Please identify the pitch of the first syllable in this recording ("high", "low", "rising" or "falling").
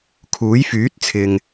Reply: rising